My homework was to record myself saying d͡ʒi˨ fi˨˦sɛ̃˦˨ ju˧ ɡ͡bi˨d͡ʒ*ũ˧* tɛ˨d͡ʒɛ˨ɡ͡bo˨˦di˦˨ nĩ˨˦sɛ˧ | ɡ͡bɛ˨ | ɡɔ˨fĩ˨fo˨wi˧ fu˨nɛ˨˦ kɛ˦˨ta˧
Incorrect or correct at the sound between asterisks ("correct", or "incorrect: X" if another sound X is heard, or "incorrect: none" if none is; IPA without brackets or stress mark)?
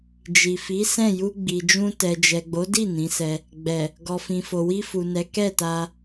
correct